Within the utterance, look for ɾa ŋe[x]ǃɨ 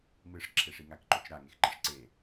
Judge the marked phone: correct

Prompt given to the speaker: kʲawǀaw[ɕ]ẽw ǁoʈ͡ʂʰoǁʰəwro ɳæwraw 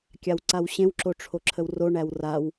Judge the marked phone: correct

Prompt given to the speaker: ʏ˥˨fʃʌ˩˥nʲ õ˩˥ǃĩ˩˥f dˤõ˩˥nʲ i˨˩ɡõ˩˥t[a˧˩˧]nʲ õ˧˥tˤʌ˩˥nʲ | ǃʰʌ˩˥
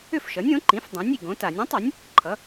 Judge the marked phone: correct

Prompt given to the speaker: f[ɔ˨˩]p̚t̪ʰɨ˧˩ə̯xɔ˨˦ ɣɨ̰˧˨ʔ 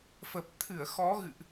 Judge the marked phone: incorrect: ə˨˩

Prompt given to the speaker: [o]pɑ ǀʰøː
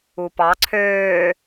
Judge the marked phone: incorrect: u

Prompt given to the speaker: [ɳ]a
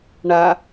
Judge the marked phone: correct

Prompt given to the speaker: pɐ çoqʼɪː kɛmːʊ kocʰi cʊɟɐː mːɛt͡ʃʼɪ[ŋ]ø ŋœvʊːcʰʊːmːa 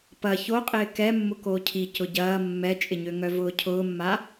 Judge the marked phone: incorrect: ɲ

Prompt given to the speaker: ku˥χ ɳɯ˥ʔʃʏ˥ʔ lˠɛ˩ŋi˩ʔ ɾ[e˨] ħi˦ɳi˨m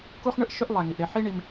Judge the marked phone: correct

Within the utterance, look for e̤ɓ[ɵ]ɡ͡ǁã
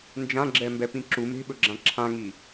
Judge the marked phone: correct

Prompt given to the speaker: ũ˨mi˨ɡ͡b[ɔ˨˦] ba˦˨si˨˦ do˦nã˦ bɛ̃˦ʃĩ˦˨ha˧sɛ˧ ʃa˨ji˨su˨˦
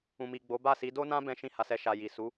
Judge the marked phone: incorrect: o˨˦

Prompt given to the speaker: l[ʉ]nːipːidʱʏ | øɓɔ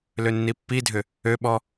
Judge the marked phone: incorrect: ø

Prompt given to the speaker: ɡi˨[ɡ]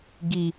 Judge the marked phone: incorrect: none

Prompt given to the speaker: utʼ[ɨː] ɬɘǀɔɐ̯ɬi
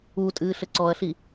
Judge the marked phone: correct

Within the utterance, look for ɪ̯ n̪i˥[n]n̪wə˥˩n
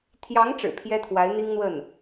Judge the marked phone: incorrect: ŋ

